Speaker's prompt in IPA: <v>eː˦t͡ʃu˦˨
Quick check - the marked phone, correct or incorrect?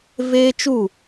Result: correct